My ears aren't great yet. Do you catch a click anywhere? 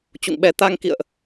no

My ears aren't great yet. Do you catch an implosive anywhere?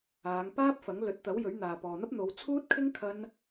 no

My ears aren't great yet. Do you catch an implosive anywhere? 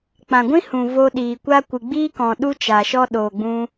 yes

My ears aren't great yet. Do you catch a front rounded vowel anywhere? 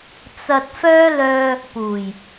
yes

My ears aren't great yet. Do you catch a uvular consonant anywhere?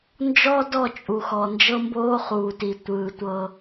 yes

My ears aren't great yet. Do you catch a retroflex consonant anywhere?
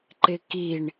yes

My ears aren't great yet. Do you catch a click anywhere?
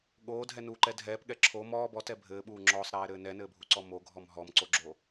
yes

